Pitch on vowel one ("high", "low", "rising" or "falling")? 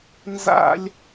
high